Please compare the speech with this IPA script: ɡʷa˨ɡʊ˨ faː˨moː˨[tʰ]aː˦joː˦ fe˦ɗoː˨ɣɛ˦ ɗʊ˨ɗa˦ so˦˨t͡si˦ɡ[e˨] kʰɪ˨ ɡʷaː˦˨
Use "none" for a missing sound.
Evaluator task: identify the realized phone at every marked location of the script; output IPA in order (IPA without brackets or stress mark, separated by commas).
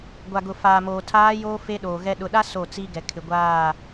tʰ, ɛ˨